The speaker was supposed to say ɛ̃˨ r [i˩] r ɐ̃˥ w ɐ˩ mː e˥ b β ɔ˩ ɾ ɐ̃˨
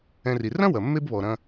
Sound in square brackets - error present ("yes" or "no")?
no